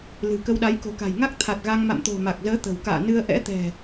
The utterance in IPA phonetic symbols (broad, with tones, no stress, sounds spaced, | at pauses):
l ɨ̤˨˩ k ə˧ w ɗ a˨˦ j k o̤˨˩ k a̤˨˩ j ŋ a˦˥ k̚ t̪ʰ a˨˩ t̚ ɣ a˧ ŋ m a̰˧˨ m t̪ o̤˨˩ m a˨˩ k̚ z əː˨˦ t̪ ə̤˨˩ w k a̰ː˧˨ n ɨ˧ ə̯ ʔ ɛ̰˧˥ t̪ ɛ̤˨˩